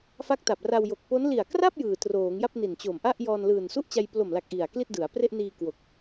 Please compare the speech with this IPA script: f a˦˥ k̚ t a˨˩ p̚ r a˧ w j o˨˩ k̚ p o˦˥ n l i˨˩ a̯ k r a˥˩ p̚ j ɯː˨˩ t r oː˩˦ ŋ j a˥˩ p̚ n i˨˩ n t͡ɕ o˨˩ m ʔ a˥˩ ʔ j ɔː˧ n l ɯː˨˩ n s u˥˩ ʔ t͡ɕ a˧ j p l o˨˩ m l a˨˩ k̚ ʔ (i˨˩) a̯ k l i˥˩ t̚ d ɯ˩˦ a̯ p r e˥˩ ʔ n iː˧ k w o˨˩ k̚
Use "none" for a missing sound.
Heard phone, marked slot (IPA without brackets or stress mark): i˨˩